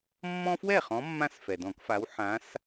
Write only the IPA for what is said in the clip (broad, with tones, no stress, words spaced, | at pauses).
mːɔ̃˦fwɛ˥˩χɔ̃˨˦ mːã˦sfɛ˩dɔ̃˧˩˧kfa˨˦w ħã˨˦s